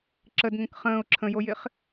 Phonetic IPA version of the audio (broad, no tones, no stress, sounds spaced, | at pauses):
ǁ ə d ŋ ə̃ k χ ə̃ː ʊ̯ ǁʰ ə̃ j o j ɪ χ